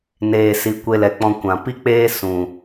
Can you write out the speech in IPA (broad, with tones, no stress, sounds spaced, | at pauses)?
n eː˨ s i˨ kʷ e˧ l ɛ˨ k͡p ɔ̃˧ kʷ ã˨ p i˦ k͡p eː˦ s ũ˨